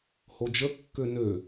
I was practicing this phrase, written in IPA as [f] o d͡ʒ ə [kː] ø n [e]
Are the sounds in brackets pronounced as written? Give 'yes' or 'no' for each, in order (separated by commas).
no, yes, no